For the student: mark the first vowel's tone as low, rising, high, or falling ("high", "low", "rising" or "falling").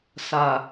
low